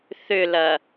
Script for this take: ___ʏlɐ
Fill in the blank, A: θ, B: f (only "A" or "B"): A